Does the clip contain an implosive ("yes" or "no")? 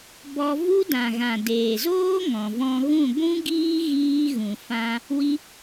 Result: no